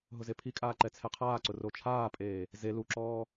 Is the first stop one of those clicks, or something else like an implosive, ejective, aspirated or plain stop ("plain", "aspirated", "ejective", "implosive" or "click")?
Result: aspirated